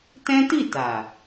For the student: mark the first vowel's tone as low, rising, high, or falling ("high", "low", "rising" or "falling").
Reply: high